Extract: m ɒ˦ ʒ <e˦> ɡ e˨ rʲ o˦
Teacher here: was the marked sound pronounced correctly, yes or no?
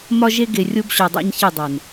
yes